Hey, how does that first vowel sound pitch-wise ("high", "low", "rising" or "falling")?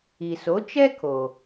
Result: low